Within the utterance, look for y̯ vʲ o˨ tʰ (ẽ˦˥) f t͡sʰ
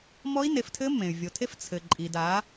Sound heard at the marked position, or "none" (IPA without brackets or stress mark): e˦˥